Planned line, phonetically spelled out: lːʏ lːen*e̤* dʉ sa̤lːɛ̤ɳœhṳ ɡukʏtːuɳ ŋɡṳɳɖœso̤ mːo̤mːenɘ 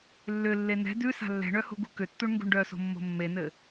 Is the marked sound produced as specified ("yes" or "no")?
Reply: no